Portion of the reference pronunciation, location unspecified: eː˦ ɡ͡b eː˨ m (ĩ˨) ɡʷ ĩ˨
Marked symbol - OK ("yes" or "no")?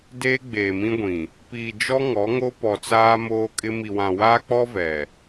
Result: no